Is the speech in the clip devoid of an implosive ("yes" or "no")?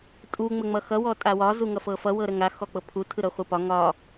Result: yes